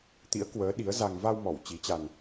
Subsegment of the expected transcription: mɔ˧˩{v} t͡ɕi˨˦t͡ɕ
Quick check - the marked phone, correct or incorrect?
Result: incorrect